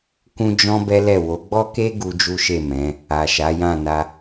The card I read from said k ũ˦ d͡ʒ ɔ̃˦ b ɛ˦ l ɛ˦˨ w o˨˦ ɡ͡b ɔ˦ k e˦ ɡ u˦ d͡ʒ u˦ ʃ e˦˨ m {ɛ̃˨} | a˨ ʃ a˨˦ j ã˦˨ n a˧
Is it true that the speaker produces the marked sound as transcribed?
no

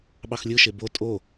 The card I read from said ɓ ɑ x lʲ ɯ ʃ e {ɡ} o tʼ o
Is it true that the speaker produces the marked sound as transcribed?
no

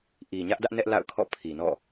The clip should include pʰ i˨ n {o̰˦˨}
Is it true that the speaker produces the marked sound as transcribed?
no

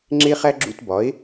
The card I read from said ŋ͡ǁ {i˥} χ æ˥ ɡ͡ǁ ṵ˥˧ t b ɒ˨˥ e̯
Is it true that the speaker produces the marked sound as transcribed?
no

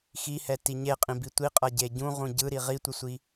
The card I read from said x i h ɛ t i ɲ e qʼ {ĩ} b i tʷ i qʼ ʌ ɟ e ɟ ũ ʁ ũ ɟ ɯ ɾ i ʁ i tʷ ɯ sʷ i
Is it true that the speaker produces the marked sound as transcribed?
yes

